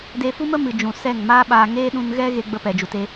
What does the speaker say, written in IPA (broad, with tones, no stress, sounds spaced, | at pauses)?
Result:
d e˧ f u˦ m ə˦ m ɨ˨ d͡ʒ ũ˨ s ɛ˦˨ ŋ m aː˦ ɓ aː˧ ŋ eː˦ ɗ ũ˧ n ɣ ɛ˦ ɣ e˦ ɡ͡b ə˧ p ɛ˨ d͡ʒ u˨ t e˦